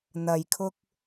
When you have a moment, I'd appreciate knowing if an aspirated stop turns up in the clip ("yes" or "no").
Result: yes